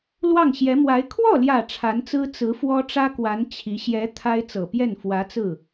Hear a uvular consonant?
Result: no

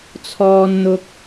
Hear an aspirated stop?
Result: yes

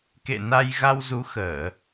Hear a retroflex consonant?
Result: no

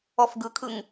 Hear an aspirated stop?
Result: yes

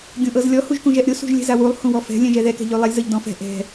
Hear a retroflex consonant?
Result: no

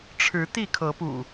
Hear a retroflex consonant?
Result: yes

